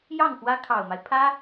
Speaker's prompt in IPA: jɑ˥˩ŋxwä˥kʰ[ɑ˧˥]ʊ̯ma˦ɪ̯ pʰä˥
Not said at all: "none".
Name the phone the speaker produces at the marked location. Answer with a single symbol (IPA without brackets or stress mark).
ɑ˨˩